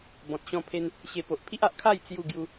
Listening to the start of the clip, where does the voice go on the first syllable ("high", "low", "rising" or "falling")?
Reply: low